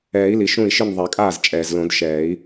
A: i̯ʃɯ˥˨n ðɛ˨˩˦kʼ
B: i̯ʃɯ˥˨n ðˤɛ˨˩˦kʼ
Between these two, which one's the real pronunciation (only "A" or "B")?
B